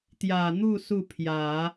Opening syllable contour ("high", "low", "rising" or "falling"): low